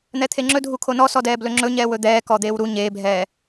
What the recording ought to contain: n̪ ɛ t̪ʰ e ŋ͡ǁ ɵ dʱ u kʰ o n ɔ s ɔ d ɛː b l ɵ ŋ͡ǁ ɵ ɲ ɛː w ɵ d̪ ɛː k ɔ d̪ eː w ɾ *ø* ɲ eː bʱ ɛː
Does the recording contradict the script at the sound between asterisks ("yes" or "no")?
yes